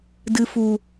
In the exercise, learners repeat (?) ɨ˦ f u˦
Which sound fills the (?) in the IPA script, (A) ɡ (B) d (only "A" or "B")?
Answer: B